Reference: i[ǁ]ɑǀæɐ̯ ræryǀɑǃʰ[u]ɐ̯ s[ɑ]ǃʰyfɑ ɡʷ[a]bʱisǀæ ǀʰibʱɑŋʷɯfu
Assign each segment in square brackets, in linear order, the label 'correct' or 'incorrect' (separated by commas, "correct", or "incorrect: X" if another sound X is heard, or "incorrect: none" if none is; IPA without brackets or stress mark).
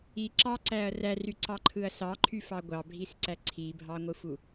correct, incorrect: ɯ, correct, incorrect: ɑ